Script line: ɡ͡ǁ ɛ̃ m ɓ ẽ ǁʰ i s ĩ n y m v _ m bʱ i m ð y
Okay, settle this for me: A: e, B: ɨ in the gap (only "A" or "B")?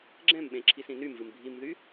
B